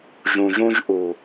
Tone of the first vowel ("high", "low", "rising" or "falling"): low